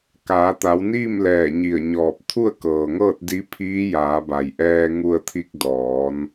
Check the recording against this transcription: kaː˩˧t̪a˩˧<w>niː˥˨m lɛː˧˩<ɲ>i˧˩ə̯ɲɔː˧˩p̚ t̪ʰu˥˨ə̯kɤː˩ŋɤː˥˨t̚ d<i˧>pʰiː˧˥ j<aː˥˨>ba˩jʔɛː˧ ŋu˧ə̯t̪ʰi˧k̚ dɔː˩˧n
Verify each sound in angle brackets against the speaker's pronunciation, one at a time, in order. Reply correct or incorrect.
correct, correct, incorrect: i˧˥, incorrect: aː˩˧

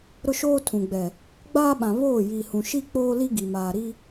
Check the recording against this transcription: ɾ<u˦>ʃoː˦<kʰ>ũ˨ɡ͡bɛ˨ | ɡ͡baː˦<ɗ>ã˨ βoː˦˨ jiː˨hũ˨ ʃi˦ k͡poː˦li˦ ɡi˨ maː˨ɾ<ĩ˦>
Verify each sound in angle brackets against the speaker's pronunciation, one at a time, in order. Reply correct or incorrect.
incorrect: ʊ˦, incorrect: tʰ, incorrect: ɓ, incorrect: i˦

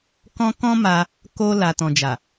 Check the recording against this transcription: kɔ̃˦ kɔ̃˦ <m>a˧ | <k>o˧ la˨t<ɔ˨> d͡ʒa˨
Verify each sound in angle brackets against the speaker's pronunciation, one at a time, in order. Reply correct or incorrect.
correct, correct, incorrect: ɔ̃˨

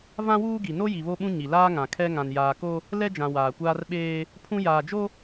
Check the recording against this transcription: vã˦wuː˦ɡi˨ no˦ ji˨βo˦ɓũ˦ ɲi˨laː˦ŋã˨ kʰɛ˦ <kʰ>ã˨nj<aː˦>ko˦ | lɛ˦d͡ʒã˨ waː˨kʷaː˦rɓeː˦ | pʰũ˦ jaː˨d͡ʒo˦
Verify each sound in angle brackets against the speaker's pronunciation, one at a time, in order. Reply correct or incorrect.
incorrect: ŋ, incorrect: aː˨

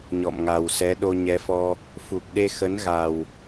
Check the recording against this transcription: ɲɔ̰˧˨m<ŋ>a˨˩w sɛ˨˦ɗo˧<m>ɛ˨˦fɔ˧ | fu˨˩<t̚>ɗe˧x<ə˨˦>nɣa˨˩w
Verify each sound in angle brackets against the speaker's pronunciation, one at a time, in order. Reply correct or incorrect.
correct, incorrect: ɲ, incorrect: k̚, correct

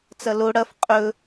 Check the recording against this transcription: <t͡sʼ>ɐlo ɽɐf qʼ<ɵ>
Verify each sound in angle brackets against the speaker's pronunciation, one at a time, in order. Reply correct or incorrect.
incorrect: t͡s, correct

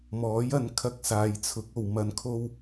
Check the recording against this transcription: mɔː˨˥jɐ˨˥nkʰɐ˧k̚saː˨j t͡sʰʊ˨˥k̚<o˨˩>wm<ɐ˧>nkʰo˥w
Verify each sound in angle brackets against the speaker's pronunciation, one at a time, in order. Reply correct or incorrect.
incorrect: o˨, correct

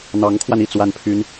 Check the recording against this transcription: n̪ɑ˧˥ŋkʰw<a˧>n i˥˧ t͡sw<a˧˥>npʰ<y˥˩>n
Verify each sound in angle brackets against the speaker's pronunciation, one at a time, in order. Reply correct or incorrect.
correct, incorrect: a˥˩, incorrect: y˥

